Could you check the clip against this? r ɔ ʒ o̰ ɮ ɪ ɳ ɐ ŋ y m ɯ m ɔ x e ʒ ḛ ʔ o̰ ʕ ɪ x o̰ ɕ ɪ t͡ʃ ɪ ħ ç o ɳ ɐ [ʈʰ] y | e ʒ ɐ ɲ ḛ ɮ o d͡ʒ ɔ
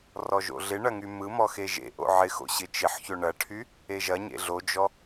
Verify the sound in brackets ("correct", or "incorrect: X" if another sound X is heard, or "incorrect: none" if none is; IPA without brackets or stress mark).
correct